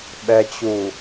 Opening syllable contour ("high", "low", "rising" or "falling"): low